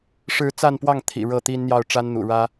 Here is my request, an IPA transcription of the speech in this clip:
ʂ ɻ̩˧˥ t͡s a˥˧ n p w ɑ˥˩ ŋ t̪ʰ ḭ˨˩ ɻ ɤ˥˩ t̪ i˥ n n̪ j ɑ˥˩ ʊ̯ ʈ͡ʂ a˥ n n̪ ṵ˨˩ ɻ ä˥

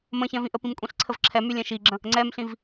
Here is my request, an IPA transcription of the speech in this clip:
m ə̃ ç ɛ̃ v ĩ ʔ ə p ĩ m kʷʼ ĩ ɬ ǀʰ ə v ǁʰ ɛ m y lʲ ɛ̃ ʃ i ɡ͡ǁ ə̃ | ŋ͡ǀ ɛ m ɬ ĩ v

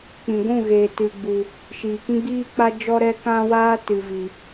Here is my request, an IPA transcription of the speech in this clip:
k͡p ĩ˨ ɡʷ ũ˦˨ ɣ eː˨ t ɨ˨ ɡ͡b u˨ | ʃ iː˨ k ĩ˦ ɡ͡b iː˦ k͡p a˦ d͡ʒ ɔ˦ ɾ ɛ˦ k ã˦ w aː˦ t ɨ˨ v i˨

